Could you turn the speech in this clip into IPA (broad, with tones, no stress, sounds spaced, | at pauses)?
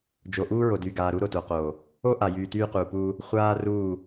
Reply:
d͡ʒ o˨ ʔ uː˦ ɹ o˨ d yː˨ ɡ aː˨ ɾ u˦ ɾ o˨ t o˨ q oː˨ | o˦ ʔ a˨ j yː˨ t yː˦ q uː˨ p uː˦ | χʷ aː˦ r uː˦˨